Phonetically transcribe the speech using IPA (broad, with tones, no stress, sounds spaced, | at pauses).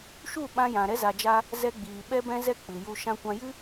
ʃ u˦˨ ɓ ã˧ j ã˨ ɾ ɛ˦ z a˧ d͡ʒ a˦ | z ɛ˧ ɡ͡b iː˨ ɓ ɛ˧ b ɛ̃˧ z ɛ˧ k͡p ɨ˨ j u˧ ʃ ã˧ kʷ ã˧ j ɨ˦